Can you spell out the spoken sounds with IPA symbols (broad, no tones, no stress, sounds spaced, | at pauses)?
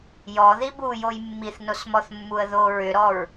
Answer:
j ɔ ð i b u j o j mː i θ n o s m ɔ θ mː u ə̯ ð o ɹ ʏ ɾ ɔ ɹ